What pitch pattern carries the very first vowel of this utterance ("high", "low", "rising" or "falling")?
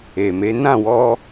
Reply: low